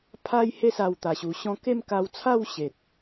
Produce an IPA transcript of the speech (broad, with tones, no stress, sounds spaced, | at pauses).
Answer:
pʰ a˧ j h e˧ s a˨˩ w t̪ a˨˩ ɕ u˨˩ ɕ ɔ̃˧ k e˥˧ m k a˧ w t͡sʰ a˥˧ w ɕ e˨ t̚